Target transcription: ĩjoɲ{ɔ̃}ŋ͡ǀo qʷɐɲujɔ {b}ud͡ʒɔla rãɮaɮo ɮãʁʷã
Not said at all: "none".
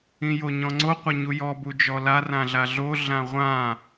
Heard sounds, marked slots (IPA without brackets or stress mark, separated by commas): ɔ̃, b